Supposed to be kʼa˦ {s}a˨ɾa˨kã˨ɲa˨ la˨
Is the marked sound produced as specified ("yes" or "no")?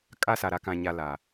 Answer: yes